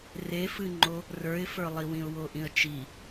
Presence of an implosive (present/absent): absent